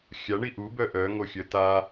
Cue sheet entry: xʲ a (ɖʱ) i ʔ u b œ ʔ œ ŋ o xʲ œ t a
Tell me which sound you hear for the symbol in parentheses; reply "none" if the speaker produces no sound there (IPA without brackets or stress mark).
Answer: ɳ